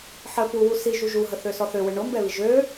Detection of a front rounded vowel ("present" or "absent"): present